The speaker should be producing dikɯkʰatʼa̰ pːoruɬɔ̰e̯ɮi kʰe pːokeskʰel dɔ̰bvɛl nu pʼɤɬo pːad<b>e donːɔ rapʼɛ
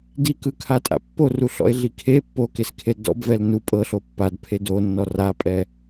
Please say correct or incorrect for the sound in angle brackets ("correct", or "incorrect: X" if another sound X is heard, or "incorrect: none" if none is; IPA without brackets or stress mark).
incorrect: pʰ